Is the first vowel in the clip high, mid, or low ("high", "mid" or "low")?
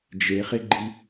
mid